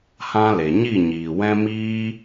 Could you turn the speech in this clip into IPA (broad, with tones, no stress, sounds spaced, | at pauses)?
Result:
h ã˦ l e˨ ɲ i˦˨ ɲ iː˨ w ɛ̃˦ m iː˦